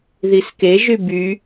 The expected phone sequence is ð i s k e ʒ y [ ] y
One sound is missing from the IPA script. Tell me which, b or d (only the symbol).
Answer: b